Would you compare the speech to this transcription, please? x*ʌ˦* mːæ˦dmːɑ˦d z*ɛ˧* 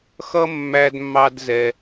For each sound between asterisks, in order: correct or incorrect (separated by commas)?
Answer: correct, correct